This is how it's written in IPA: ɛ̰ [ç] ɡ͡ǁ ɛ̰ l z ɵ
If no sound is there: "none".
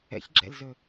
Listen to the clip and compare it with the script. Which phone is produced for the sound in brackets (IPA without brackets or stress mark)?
ç